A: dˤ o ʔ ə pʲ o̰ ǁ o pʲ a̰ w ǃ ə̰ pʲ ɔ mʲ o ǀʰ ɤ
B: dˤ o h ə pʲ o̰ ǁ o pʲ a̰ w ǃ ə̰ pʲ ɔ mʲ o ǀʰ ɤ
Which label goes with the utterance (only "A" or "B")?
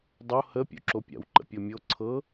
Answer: B